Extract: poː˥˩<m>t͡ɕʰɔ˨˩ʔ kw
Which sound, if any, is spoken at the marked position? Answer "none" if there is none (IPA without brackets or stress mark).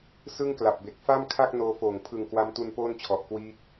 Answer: n